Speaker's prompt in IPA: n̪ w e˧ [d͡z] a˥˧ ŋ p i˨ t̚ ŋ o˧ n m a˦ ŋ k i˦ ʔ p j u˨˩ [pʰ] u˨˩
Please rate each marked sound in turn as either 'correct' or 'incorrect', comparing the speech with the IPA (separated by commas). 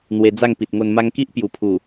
correct, correct